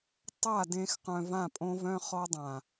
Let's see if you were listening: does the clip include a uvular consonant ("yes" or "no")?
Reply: yes